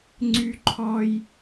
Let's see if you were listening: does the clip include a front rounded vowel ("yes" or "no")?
yes